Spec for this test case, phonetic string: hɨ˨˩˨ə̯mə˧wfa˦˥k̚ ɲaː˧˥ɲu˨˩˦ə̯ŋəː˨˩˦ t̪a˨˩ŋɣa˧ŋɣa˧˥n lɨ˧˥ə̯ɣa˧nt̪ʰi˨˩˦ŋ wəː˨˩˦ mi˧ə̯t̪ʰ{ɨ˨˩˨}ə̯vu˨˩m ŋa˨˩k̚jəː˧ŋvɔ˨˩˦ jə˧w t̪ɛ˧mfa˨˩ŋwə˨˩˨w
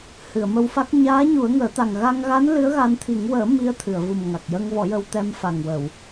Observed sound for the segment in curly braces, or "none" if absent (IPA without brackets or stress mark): ɨ˨˩˨